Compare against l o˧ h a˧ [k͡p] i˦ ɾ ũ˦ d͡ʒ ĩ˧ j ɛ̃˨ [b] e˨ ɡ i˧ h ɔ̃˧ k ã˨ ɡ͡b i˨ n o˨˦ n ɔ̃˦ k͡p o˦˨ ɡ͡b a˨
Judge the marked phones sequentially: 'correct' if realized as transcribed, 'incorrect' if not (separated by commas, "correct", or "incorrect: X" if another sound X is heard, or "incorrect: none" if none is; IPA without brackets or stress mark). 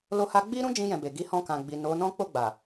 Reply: incorrect: ɡ͡b, correct